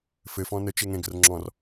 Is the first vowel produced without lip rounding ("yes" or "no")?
yes